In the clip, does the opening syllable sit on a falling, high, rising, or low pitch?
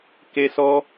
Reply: high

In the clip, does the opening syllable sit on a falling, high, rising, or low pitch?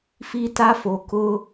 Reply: high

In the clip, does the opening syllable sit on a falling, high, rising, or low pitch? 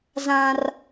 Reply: high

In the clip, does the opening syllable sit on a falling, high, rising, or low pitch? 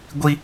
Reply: high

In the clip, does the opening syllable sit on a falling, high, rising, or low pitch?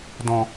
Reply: low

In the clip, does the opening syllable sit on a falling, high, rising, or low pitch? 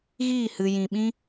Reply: falling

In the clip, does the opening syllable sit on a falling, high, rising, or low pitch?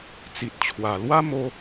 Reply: low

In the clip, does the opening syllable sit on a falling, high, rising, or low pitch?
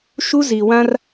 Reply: high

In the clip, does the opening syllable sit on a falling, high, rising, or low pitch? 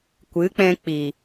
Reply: rising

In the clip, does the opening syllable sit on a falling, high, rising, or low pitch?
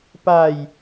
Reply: low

